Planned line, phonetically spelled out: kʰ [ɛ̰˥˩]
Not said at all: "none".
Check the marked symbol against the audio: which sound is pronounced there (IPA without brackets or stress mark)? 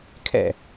ɛ̰˥˩